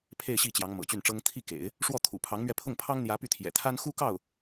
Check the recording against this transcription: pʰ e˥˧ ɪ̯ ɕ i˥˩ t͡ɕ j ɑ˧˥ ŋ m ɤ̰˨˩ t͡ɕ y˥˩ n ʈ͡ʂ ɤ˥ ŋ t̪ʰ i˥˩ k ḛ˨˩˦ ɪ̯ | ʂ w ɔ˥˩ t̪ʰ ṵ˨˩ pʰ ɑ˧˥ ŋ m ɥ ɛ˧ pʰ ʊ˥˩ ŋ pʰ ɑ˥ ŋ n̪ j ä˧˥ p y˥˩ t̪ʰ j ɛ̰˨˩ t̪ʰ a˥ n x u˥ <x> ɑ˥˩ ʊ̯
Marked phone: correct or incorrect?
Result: incorrect